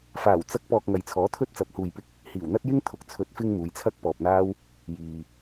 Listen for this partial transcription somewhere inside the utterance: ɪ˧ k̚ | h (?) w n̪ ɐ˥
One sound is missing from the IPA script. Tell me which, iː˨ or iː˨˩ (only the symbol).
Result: iː˨˩